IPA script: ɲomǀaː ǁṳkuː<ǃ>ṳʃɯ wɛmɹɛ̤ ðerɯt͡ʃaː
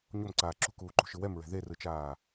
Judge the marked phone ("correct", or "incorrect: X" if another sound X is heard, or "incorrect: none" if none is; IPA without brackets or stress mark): correct